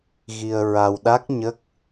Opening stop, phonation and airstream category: implosive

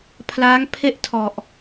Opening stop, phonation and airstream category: aspirated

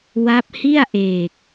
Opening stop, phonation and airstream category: plain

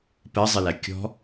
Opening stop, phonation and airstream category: plain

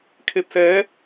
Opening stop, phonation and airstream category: aspirated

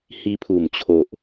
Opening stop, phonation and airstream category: aspirated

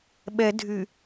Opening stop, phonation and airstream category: implosive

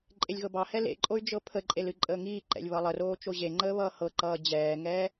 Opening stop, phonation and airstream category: click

